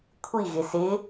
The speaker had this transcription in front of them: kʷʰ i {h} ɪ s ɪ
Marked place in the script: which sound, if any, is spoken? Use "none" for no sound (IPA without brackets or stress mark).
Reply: ɣ